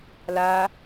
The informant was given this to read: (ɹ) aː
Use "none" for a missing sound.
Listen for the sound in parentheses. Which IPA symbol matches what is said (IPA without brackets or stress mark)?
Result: l